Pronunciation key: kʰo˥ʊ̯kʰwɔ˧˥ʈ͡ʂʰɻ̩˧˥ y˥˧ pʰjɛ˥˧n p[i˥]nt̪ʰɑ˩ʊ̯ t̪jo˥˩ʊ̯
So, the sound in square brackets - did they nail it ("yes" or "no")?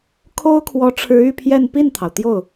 no